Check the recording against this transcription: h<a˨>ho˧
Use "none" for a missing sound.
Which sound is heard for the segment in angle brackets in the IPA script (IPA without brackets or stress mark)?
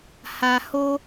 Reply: a˨